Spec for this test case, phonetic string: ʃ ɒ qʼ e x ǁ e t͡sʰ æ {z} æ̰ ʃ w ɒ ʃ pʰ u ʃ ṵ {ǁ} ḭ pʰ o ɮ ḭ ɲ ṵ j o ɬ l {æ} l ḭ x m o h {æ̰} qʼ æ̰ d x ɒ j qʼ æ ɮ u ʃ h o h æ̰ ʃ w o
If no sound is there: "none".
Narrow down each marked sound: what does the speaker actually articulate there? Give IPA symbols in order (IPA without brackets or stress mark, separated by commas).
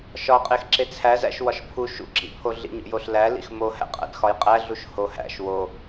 z, ǁ, æ, æ̰